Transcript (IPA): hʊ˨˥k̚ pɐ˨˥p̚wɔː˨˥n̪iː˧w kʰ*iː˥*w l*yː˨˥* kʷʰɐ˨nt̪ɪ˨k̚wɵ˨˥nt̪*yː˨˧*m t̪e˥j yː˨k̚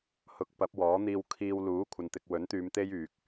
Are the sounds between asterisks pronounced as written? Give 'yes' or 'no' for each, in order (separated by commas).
no, no, yes